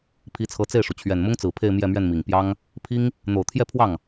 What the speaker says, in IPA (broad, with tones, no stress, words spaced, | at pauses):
pʰi˧˥t͡sʰɤ˧˥t͡se˥˩ɪ̯ʂu˩ t͡ɕʰɥɛ˨˩nmʊ˥ŋt͡sɹ̩˨˩ pʰe˥˧ɪ̯mjɛ˥˧mɥɛ˥˩nmi˨˩ŋ pjɑ˥ŋ | pʰi˥ŋ | n̪o˨˩ʊ̯t̪ʰjɛ˥˧pʰwɑ˥˩ŋ